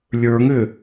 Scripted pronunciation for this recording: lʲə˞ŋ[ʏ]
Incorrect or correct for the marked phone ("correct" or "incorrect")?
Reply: correct